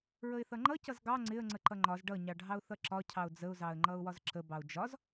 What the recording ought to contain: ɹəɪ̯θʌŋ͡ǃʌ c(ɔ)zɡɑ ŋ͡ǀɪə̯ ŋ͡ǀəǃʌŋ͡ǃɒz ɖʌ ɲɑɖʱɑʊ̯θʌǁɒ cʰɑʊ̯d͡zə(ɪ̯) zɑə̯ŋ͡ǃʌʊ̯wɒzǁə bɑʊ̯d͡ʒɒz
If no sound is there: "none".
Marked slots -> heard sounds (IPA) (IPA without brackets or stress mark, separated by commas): ʌ, ʊ̯